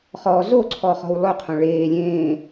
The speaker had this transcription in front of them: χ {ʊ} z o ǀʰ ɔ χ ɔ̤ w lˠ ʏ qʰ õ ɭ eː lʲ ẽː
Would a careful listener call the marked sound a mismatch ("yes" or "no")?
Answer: yes